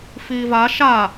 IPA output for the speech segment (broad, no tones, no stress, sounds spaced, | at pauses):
f iː v a ʃ a